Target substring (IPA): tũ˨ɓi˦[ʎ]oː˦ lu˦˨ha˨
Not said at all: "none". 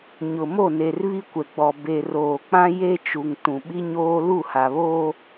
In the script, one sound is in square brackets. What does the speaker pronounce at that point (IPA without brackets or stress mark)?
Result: ɲ